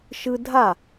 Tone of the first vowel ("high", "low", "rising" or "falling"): high